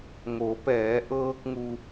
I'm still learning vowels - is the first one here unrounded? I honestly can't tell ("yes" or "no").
no